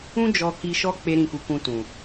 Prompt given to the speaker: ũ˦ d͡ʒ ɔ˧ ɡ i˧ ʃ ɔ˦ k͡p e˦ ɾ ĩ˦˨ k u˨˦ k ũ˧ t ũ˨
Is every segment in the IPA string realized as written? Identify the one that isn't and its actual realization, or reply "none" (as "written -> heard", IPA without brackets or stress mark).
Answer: ɡ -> k